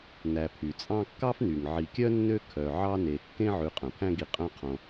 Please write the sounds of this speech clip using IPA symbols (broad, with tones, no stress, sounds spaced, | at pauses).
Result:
n æ˨ pʰ y˩ t͡sʼ ɑ̃˦ kː ɑ˥ f n y˩ ŋ ʕ i˨ kʲ œ˥ nː ø˦ kʰ œ˨ ʕ ɑ˥ n e˨ kː ẽ˥ ʕ ʉ˨ qʼ œ̃˩ pʰ æ̃˦ ɡ i˨ qʼ œ̃˦ qʰ õ˨